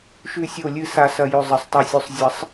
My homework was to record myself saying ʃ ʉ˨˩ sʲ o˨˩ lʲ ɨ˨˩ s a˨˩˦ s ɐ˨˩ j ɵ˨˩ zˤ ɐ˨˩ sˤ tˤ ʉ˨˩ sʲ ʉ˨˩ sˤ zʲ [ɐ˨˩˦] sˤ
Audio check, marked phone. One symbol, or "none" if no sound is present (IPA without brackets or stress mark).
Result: ɐ˨˩˦